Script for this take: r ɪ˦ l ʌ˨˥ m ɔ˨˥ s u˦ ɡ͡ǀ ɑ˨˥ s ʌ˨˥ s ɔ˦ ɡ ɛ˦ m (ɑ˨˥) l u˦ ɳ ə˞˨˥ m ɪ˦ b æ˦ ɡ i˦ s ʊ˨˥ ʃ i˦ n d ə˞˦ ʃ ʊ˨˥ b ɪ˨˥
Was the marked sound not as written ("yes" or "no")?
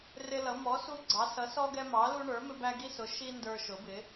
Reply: no